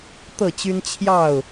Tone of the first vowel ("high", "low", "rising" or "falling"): falling